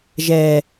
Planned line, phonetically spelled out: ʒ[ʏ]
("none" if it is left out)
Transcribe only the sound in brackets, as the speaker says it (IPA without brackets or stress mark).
ɛ